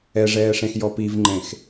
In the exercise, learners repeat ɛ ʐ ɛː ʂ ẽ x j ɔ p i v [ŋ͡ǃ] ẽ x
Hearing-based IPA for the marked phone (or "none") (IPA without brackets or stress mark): ŋ͡ǃ